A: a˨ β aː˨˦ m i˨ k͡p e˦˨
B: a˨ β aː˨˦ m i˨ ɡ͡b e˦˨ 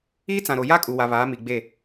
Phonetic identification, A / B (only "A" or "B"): B